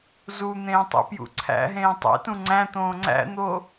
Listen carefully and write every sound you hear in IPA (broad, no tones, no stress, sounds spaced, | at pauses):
z u n̪ ẽː tˤ ḭ p j ṵ ǀʰ æ̰ ɦ ẽː tˤ ḛ t ũ ŋ͡ǀ æ̃ t̪ õː ŋ͡ǀ æ̰ n̪ o